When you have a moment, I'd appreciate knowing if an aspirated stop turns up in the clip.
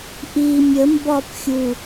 no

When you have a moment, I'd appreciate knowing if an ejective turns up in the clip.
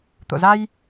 no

